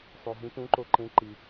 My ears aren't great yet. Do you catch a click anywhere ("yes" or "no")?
yes